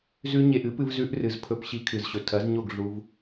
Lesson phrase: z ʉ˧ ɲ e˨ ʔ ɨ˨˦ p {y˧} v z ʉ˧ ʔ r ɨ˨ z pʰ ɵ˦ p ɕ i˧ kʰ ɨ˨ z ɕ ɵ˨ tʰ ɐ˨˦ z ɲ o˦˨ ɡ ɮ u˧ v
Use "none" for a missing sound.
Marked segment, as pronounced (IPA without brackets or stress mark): ɨ˧